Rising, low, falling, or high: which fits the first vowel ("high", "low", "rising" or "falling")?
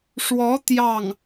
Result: rising